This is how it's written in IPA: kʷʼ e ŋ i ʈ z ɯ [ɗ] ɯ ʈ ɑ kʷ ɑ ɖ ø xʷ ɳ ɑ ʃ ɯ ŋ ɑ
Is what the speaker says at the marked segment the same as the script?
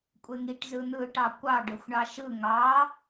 no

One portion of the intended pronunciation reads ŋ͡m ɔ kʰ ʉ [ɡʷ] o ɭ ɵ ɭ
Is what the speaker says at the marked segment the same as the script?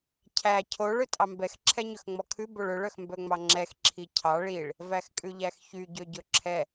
no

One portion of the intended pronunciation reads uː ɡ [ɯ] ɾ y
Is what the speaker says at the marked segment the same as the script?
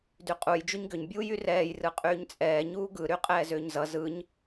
yes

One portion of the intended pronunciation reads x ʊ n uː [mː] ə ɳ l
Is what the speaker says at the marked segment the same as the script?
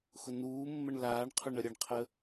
yes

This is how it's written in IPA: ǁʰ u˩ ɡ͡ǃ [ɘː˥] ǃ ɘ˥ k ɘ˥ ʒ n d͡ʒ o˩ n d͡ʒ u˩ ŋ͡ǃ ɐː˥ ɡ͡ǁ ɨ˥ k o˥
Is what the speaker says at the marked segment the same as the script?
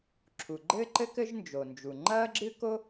yes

